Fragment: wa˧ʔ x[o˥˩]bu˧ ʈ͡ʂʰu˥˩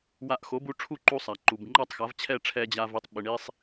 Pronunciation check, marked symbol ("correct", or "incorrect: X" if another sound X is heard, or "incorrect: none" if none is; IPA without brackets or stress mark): incorrect: o˩˥